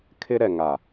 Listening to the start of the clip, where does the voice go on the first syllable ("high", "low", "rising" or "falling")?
high